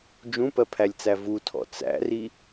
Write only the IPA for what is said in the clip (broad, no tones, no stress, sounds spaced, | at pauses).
d͡ʒ ũ p ɜ pʰ æ lʲ t͡s æ v u tʰ ɔ̰ t͡s æ̰ r i